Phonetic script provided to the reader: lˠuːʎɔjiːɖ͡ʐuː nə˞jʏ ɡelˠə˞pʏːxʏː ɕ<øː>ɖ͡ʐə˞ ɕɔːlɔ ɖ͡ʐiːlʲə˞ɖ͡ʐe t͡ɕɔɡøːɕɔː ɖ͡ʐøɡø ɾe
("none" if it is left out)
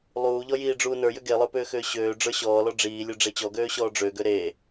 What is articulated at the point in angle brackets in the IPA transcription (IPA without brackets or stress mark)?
øː